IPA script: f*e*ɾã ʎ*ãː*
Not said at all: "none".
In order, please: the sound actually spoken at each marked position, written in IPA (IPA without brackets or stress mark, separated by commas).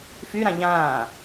y, ãː